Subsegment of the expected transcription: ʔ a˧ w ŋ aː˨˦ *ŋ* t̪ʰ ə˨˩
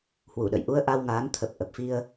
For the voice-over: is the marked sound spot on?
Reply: no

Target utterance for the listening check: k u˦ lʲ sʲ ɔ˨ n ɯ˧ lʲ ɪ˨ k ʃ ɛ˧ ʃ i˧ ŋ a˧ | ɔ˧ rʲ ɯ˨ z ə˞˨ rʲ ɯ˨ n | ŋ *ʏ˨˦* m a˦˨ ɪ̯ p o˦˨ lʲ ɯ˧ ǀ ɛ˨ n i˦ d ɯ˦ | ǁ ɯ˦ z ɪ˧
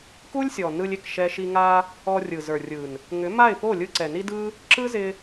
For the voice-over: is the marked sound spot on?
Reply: yes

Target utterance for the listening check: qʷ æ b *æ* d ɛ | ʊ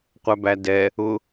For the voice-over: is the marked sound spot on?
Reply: yes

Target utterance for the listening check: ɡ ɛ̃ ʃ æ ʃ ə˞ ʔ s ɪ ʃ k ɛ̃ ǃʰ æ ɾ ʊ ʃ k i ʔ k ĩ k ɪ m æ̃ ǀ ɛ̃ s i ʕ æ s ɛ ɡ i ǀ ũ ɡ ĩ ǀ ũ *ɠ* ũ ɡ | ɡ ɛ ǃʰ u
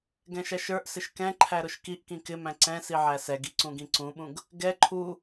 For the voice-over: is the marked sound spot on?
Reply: no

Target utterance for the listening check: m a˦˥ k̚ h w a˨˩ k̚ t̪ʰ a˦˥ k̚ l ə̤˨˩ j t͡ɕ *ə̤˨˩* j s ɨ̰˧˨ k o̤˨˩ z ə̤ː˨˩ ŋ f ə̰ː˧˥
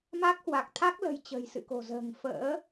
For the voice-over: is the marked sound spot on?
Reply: yes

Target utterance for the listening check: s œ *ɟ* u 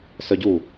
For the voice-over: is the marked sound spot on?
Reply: yes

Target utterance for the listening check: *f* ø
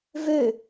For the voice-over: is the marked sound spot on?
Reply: no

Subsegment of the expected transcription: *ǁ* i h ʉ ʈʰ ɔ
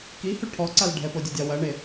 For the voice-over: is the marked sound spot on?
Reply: no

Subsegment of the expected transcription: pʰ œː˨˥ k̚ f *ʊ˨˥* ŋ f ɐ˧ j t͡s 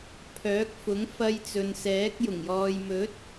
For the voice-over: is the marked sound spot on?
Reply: yes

